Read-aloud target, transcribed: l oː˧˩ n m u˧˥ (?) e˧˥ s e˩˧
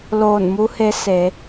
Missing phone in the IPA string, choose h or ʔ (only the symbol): h